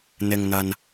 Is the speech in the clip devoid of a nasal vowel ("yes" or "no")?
yes